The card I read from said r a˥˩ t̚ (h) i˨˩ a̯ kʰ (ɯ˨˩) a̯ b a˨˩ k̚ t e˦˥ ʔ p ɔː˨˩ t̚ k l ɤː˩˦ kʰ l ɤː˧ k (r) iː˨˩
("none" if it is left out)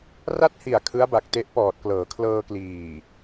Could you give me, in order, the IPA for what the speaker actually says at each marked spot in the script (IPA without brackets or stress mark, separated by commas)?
h, ɯ˦˥, l